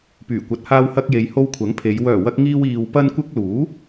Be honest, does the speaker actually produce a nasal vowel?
no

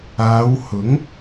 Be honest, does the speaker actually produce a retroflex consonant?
no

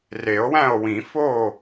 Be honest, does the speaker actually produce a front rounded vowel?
no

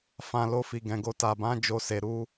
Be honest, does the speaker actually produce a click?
no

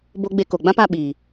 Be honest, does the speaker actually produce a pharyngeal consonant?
no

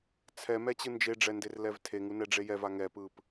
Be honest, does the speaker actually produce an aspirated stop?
yes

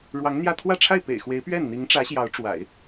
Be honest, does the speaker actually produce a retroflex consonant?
yes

